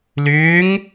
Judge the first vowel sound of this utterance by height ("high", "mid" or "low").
high